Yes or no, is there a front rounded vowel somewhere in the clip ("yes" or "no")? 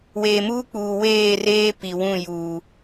no